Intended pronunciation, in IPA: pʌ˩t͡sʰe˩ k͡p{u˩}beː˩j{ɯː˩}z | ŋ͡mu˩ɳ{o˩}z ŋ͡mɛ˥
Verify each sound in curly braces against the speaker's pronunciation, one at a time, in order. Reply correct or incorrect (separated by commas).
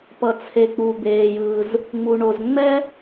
correct, correct, correct